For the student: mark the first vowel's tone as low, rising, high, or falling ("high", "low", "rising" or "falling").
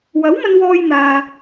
rising